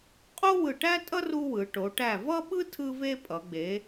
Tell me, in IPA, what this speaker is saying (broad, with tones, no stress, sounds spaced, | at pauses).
qʼ o˥ w ɯ˧˩ ʈ æ˥ tʼ ʌ˥ r u˥ w ɯ˩˧ ʈ o˩˧ ʈ æ˧˩ v ʌ˥ ɓ ɯ˥ tʰ ɯ˥ v e˥ pʼ ʌ˩˧ ɡ͡b e˩˧